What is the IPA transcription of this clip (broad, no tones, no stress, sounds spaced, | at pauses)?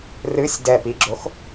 r ɨ sʲ d ɛ p i ɡ͡ǁ o x